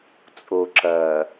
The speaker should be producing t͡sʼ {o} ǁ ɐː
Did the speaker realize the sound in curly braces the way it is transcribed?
yes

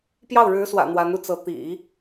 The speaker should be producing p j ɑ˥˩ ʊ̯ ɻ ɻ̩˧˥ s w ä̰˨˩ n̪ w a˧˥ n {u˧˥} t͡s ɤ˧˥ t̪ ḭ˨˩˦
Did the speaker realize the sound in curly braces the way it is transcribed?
no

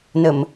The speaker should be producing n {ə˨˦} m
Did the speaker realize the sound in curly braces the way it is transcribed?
no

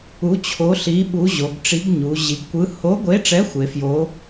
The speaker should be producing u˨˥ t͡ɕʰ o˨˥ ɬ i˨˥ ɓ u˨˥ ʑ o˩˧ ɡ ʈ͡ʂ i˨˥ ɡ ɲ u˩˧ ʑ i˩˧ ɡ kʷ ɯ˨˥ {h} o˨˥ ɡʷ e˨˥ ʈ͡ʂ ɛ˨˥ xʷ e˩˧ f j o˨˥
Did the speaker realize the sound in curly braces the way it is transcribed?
yes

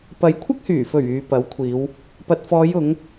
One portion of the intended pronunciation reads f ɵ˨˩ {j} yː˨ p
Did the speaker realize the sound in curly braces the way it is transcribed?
no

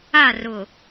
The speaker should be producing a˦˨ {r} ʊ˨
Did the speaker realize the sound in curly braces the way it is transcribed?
yes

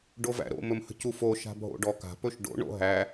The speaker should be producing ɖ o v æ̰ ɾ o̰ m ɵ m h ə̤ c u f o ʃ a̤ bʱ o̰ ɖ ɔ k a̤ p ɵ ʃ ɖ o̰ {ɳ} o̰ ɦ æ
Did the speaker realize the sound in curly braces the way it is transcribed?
yes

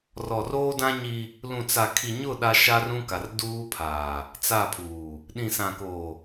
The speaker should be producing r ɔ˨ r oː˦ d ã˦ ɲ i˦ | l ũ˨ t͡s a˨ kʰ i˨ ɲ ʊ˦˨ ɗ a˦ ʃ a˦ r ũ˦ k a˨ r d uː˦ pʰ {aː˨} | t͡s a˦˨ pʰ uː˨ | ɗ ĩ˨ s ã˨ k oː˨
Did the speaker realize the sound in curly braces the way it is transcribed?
yes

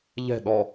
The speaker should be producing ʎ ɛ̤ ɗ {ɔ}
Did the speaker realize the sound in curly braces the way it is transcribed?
yes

